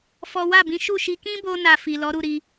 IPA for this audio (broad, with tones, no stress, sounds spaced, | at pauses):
f ɔ˦ w a˦˨ b ĩ˨˦ ʃ u˦˨ ʃ i˧ k ĩ˦ b o˧ n a˨ f i˨ l ɔ˨˦ ɾ u˦˨ ɾ i˨˦